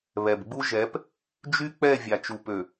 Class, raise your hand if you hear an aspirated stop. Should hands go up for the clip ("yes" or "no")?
no